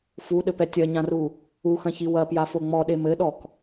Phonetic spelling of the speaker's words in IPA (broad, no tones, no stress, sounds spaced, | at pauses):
f u ɗ ɘ p ɛ tʲ ɐ ɲ ã r u | u x ɐ̃ ç i w ɐ p j a f o ŋ͡m ɔ ɗ e m ɘ ɗ ɔ k